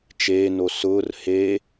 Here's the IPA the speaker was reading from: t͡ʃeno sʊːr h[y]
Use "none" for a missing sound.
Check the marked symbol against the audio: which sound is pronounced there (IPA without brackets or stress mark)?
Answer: e